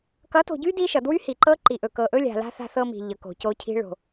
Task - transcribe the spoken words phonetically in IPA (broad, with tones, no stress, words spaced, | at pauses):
kʌ˨˦to̤˨ɟy˦ di˦ʃʌ˨ dwy˦hi˨ǃɤ˦ ǃi˨ʔɵ˨ kɤ˨ʔɵ˦lʲa̤˨ la̤˦ θa̤˦θɤ˦mi̤˨ ʎɤ˨ko̤˨co˦cʰi̤˦ ɭo̤˨